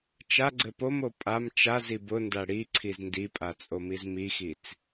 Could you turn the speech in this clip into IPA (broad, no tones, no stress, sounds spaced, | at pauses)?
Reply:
t͡ʃ a ɡ͡ǀ ɘ p o m o pʼ a m t͡ʃ a z i b ʊ n d a ɽ i ǀʰ i z n d i pʼ a t͡sʼ o m i z m i x i t͡s